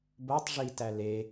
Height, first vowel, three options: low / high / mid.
mid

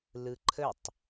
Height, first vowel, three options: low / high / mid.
high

